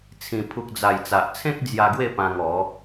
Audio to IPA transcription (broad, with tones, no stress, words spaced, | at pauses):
t͡sʰĩ˨˩pʰu˨k̚d͡za˨˩j t͡sa˨ʔt͡sʰẽ˦k̚ d͡zja˧ɡwe˥˧ pã˧ŋɔ˨˦